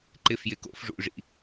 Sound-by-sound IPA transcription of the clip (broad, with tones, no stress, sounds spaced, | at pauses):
ǃ ɪ˩˧˩ f j ɪ˩˧˩ k o̰˧˩˧ f ʐ ṵ˩˧˩ ʐ ḭ˩˧˩